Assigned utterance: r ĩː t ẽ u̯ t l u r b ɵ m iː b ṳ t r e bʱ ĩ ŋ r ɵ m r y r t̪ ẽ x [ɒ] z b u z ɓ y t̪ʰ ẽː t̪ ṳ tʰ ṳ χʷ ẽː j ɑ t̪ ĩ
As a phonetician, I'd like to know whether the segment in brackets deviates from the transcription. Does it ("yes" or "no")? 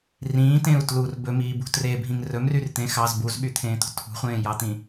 yes